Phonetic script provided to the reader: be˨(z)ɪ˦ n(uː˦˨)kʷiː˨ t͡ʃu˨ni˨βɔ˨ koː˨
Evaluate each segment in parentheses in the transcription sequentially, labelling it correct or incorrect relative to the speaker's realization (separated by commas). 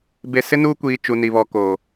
incorrect, incorrect